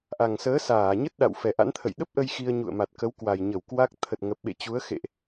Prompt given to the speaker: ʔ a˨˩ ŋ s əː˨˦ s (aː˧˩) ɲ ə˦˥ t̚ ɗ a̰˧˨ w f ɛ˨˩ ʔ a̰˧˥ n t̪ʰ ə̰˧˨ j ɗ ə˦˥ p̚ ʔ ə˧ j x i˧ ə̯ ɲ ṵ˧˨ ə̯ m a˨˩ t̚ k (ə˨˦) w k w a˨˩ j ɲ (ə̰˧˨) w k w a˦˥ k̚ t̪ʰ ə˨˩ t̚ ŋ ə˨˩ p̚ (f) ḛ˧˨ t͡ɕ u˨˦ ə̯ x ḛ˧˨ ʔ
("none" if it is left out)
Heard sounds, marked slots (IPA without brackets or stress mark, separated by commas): aː˧˩, ə˨˦, ə˧˩, ɓ